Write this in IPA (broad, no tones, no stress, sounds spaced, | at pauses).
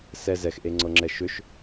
s ɛ z ɛ x ʔ e ŋ͡ǀ ɤ ŋ͡ǁ ɛ ʃ ʏ ʃ